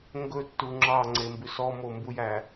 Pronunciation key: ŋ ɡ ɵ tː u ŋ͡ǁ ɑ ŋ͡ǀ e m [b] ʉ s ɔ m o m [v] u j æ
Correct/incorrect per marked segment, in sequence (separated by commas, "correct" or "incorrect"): correct, incorrect